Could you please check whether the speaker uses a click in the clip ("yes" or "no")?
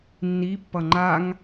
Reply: yes